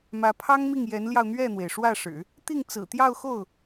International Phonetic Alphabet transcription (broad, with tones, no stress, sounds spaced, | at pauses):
m ä˧˥ pʰ ɑ˥ ŋ m i˥˩ ŋ j ɛ˧˥ n l j ɑ˧ ʊ̯ n̪ ɥ ɛ˥˩ n̪ w e˩ ɪ̯ ʂ w ä˥˩ ʂ ɻ̩˨˩˦ | t̪ i˥˩ ŋ t͡s ɹ̩˨˩ t̪ j ɑ˥˧ ʊ̯ x o˥˩ ʊ̯